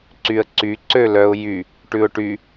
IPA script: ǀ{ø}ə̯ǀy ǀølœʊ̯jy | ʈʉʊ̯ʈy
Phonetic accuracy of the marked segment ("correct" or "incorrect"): incorrect